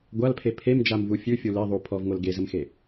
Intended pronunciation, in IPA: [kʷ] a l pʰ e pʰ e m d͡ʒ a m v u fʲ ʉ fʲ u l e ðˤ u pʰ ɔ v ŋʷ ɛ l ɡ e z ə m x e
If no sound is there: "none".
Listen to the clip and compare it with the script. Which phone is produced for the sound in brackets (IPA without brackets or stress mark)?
ɡʷ